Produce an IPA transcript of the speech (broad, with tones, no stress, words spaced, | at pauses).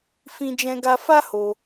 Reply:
fĩ˧d͡ʒɛ̃˧ɡa˧ fa˦ho˧